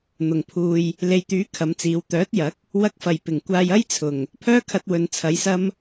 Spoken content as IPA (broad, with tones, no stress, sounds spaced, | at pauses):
n̪ ʊ˨˩ ŋ pʰ uː˧ j | l e˨ j t̪ yː˨˥ kʰ ɐ˨˧ m t͡s iː˨˥ w t̪ œː˨˥ t̚ j ɐ˨˥ k̚ | w ɐ˧ k̚ f ɐ˨˩ j p ɪ˨˩ ŋ kʷ aː˧ j ɐ˥ j t͡sʰ ʊ˨˩ ŋ | pʰ œː˥ kʰ ɐ˧ t̚ w ɵ˨ n t͡sʰ ɐ˨˧ j s ɐ˥ m